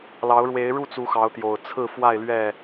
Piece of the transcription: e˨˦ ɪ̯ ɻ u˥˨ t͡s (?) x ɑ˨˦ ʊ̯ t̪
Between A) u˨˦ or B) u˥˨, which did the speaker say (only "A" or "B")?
A